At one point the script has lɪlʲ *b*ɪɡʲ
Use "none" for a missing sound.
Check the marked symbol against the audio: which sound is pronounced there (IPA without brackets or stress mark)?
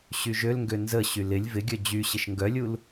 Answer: v